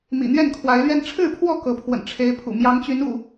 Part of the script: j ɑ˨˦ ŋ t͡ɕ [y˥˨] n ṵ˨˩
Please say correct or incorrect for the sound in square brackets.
incorrect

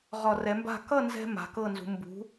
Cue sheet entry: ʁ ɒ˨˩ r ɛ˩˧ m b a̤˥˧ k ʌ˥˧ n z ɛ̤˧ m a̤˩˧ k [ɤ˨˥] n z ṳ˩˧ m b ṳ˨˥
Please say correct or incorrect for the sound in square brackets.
incorrect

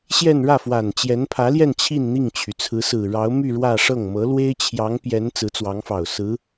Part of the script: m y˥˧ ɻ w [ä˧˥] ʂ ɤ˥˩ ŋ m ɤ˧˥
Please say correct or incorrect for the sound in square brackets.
incorrect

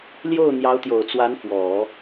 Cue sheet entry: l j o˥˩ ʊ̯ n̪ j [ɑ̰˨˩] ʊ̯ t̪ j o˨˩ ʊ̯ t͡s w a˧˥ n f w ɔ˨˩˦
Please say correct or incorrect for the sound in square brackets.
incorrect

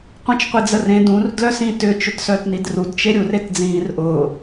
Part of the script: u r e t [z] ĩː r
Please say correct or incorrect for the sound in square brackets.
incorrect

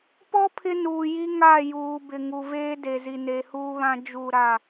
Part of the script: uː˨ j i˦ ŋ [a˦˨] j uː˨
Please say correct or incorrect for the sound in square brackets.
correct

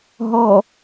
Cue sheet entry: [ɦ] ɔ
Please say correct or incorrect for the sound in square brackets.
correct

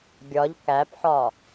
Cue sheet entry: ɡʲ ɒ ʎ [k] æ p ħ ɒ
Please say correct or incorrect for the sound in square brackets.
correct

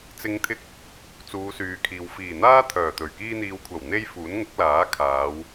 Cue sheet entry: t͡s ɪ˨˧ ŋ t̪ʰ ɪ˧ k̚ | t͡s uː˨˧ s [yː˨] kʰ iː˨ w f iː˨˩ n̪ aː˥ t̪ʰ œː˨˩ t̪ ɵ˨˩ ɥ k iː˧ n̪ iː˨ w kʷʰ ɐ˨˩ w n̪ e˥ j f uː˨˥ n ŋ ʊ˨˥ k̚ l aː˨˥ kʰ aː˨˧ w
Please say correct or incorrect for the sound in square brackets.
correct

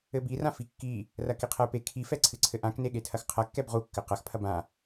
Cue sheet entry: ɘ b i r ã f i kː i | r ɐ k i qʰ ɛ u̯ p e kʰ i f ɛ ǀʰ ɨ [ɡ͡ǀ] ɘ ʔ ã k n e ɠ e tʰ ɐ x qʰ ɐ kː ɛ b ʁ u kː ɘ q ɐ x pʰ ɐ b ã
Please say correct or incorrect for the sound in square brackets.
incorrect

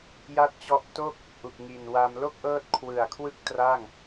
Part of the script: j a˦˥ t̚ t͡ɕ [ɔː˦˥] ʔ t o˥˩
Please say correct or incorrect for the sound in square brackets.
incorrect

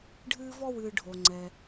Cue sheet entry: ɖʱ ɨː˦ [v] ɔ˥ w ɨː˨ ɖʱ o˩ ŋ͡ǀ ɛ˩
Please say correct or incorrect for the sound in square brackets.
correct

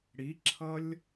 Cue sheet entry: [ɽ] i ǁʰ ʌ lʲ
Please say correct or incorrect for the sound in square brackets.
correct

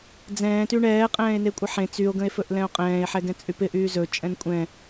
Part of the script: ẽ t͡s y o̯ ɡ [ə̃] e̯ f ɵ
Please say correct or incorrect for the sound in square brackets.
correct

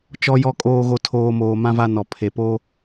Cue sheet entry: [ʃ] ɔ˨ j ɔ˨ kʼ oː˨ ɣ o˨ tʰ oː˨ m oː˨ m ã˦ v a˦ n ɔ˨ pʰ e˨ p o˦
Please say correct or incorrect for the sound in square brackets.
incorrect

